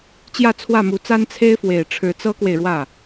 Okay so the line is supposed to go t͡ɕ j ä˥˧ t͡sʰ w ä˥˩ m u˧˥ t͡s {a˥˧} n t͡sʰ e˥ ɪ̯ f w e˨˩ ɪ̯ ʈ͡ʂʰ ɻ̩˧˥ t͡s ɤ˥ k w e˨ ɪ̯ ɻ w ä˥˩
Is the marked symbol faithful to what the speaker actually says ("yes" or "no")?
no